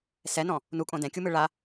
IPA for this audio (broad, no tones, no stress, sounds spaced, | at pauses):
s ɛ n ɔ̃ | n u kʼ õ d ɛ̃ kʲ u m ɯ ɭ a